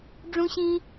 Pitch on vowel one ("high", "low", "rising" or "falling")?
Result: high